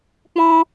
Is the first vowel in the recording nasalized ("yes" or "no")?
yes